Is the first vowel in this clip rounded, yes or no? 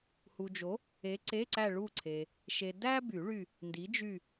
yes